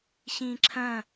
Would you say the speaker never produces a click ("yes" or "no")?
no